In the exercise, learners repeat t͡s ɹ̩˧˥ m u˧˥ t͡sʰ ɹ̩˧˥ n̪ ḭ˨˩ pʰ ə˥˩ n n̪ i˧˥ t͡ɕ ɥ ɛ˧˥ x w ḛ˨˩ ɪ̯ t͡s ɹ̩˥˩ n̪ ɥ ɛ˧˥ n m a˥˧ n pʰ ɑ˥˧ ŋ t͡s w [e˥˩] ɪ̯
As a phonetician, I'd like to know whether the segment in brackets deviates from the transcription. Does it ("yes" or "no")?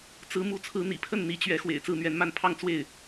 no